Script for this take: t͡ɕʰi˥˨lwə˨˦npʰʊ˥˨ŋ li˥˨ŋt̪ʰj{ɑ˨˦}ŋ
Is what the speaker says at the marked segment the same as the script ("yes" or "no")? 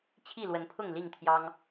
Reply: no